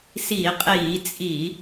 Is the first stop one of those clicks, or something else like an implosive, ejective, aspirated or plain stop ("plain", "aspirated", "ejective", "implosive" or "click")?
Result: ejective